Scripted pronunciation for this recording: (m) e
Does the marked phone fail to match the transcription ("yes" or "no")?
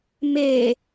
no